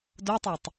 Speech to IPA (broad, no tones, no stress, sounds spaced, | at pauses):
d o tˤ a tˤ